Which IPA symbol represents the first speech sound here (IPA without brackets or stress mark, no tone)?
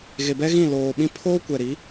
ɣ